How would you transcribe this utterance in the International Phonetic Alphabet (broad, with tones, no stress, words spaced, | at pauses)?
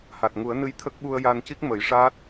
ha˨˩t̚ŋu˨˩˦ə̯nɨ˧j t̪ʰə˦˥k̚ɓu˧ə̯ ja˧nci˦˥k̚ mə˨˩˦jʂaː˦˥t̚